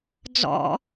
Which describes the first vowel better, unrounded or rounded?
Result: rounded